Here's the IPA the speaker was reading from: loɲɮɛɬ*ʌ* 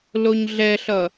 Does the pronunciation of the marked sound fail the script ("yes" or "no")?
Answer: no